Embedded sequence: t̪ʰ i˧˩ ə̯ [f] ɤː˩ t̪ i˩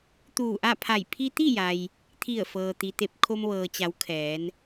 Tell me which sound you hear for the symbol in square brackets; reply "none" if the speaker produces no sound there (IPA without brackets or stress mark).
f